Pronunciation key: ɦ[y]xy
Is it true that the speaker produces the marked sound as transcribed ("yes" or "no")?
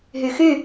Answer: yes